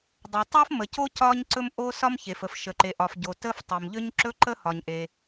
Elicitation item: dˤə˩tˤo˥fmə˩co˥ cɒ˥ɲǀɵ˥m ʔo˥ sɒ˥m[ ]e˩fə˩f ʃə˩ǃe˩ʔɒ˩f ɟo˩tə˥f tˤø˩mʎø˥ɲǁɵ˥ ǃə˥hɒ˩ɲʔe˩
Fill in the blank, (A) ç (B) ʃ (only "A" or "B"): A